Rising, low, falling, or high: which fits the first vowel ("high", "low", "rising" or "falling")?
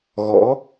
rising